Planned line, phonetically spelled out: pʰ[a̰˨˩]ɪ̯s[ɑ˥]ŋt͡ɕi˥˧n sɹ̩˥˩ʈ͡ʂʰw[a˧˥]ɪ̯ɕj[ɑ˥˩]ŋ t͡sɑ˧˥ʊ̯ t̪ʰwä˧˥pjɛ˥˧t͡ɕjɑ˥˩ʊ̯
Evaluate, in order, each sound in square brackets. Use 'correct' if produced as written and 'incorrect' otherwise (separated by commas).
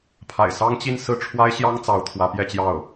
correct, correct, incorrect, incorrect